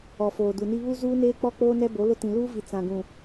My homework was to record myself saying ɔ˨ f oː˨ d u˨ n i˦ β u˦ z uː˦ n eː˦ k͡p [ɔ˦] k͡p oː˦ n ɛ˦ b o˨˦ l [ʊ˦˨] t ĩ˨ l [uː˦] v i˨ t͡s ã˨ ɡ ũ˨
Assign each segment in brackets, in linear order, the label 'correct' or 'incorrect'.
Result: correct, incorrect: ʊ˦, correct

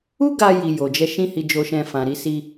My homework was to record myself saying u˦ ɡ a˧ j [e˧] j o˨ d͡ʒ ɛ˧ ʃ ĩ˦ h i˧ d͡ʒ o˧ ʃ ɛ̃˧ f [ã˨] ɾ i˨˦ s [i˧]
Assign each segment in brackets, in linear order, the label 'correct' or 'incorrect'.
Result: incorrect: i˧, correct, correct

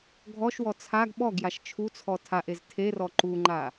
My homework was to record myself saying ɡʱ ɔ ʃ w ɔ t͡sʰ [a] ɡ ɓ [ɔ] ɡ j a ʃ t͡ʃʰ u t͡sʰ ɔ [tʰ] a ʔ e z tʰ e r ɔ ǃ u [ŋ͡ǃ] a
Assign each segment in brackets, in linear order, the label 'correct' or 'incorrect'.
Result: correct, correct, correct, correct

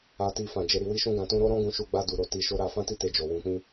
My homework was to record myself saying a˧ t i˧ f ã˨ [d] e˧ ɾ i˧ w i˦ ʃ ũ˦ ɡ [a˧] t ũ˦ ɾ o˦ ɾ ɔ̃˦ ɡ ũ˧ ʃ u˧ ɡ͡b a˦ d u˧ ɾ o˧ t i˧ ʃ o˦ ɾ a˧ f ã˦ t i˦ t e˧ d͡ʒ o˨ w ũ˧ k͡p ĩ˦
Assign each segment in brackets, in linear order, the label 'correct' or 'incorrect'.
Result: incorrect: d͡ʒ, incorrect: ã˧

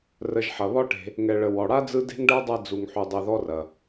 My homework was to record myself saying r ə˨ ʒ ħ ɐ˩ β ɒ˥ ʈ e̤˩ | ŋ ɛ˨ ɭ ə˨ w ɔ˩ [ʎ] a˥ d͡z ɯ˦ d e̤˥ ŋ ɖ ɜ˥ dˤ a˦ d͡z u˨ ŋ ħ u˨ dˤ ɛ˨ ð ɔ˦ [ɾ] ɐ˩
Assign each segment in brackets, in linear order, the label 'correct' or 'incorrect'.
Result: incorrect: ɽ, incorrect: r

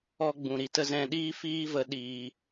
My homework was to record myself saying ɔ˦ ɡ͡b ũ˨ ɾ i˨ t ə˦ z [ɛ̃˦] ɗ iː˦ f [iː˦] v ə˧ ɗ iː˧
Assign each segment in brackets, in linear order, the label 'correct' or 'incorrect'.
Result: incorrect: ɛ̃˧, correct

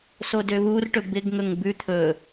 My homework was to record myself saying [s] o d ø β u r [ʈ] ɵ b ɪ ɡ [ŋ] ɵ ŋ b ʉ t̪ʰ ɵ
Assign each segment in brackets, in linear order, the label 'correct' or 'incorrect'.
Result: correct, correct, correct

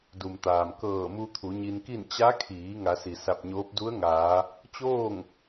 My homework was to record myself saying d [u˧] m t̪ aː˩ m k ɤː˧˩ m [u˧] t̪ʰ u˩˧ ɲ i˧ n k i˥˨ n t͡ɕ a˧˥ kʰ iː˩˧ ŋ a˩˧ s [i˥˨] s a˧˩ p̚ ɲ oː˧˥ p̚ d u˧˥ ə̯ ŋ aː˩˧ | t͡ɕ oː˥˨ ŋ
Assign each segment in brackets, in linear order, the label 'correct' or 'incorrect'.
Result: incorrect: u˩, correct, incorrect: i˩

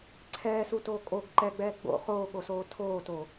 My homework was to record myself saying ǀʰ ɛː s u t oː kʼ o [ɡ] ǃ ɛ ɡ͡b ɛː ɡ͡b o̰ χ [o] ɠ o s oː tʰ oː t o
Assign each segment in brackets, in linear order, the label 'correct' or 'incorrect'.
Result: correct, incorrect: oː

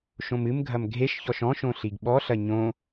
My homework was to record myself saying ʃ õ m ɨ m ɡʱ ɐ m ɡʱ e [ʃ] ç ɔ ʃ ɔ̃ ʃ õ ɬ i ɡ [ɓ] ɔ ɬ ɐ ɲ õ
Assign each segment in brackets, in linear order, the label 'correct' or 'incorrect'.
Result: correct, correct

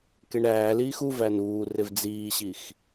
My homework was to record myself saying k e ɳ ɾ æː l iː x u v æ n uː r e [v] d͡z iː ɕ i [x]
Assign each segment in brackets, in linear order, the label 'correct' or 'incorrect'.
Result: correct, correct

